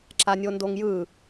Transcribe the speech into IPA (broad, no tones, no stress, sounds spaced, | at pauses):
ǁ a nʲ o n d o ŋ j ɯ